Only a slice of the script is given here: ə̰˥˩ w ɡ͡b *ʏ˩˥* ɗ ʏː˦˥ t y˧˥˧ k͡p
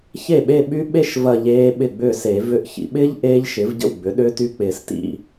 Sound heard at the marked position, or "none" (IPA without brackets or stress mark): ʏ˩˥